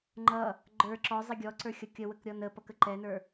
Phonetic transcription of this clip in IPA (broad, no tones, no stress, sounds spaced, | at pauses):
ŋ͡ǃ ʌ | ɡ͡ǃ ə˞ ǁ ɔ zˤ i ɡʲ ɔ ǀ ə˞ xʲ ʌ kʲ ə w ə k ɾʲ ɔ n ə p ʌ k ə ǃ ɛ n ə˞